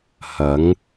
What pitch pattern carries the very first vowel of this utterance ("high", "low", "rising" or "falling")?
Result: rising